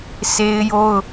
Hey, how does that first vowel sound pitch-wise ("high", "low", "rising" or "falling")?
high